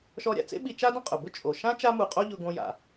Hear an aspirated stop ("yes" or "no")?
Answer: no